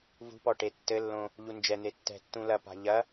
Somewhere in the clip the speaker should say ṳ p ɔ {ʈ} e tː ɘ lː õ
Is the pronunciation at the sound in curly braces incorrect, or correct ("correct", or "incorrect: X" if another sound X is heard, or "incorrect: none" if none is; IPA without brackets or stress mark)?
correct